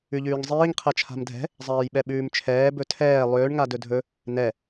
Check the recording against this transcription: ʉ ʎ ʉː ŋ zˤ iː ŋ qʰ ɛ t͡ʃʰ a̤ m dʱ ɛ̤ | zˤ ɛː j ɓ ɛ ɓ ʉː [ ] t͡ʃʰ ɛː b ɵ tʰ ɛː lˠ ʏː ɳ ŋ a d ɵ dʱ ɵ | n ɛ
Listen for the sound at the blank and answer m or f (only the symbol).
m